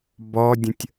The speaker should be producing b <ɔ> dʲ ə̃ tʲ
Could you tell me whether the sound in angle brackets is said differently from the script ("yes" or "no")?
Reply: no